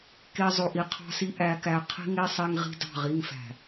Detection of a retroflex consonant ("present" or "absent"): absent